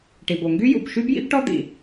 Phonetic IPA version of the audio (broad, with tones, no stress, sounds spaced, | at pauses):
ʈ i˩ b o˩ ŋ ɡ y˥ j ṵ˩ b ʃ y˥ b j ḭ˥ b ʈ ɔ˥ d̪ ḭ˩